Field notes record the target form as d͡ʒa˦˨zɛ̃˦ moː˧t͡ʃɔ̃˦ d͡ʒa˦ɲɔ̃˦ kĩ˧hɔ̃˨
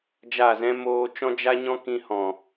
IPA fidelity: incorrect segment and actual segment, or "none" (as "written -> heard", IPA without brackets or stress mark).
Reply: none